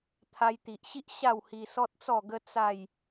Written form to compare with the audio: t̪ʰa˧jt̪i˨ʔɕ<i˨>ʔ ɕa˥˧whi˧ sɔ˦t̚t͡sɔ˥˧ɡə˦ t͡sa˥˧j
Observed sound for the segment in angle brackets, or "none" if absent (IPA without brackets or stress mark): i˦